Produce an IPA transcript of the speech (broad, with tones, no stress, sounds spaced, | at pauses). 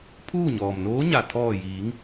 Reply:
pʰ uː˥˨ ɲ ɔː˩ m n oː˧˥ ɲ a˩ t̪ʰ ɔː˧˩ j iː˩˧ ŋ